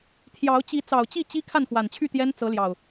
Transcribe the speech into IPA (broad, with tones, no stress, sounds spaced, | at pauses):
t̪ʰ j ɑ˨˦ ʊ̯ t͡ɕ i˨˦ t͡s ɑ˨˩ ʊ̯ t͡ɕ i˥˨ t͡ɕ i˦ kʰ a˥˨ n x w a˨˩ n t͡ɕʰ y˥˨ t̪ j ɛ˦ n t͡s ɤ˨˦ l j ɑ˨˩ ʊ̯